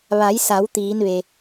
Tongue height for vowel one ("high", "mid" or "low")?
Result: low